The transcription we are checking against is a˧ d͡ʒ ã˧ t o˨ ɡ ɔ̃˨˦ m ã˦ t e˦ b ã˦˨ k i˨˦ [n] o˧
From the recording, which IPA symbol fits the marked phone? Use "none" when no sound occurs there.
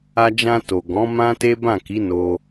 n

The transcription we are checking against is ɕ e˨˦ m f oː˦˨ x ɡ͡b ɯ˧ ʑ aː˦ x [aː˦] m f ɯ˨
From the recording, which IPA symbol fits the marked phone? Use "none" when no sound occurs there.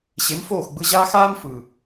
aː˦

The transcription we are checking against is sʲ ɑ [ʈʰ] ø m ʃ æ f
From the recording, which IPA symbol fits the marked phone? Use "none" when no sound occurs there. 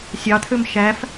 t̪ʰ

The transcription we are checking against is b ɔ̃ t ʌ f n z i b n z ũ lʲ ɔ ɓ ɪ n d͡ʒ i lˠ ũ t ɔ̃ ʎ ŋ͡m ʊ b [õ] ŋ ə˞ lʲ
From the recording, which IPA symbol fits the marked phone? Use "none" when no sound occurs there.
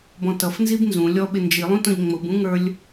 ũ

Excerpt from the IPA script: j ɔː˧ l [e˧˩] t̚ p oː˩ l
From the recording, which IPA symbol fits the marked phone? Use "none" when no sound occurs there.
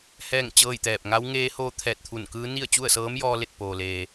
e˧˩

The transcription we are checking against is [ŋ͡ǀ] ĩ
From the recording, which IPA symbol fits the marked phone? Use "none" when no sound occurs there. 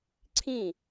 ǀʰ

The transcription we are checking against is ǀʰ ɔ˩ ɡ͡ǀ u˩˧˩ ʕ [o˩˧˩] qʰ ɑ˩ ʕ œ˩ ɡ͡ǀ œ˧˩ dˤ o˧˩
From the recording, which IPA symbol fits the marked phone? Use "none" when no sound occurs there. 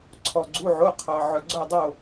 o˩˧˩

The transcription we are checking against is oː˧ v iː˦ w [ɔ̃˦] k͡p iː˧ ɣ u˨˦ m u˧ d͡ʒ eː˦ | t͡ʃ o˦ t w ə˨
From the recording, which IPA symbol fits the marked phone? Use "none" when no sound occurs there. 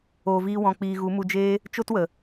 ɔ̃˧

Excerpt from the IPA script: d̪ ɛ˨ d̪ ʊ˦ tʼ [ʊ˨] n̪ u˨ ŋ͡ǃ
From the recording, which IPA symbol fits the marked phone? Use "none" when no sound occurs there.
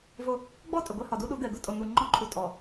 ʊ˨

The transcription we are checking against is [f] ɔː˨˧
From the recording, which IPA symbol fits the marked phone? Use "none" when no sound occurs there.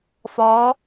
f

